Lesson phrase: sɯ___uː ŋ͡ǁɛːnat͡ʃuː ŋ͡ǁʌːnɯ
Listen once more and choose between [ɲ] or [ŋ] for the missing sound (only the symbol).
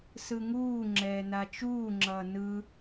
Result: ŋ